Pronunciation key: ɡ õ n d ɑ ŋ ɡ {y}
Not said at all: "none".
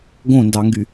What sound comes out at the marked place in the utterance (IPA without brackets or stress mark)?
y